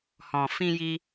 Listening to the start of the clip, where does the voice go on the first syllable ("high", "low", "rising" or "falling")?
low